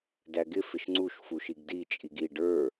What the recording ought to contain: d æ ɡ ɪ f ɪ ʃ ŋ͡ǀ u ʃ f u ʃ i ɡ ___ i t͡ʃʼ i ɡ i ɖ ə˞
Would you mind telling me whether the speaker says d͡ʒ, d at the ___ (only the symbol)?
d